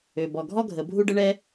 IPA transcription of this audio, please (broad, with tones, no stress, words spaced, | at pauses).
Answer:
ø˩bɔ˩ɡʱɔ˥ ɡʱə˩bʱu˥ɖə˥ ɳɛ˥